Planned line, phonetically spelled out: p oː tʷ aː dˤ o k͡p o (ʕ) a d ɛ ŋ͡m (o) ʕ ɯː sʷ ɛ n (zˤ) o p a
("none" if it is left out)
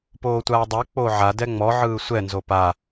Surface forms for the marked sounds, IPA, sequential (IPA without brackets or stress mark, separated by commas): ʕ, ɔ, z